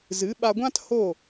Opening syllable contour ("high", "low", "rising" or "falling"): rising